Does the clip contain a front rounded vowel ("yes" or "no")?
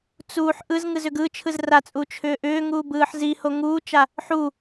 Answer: yes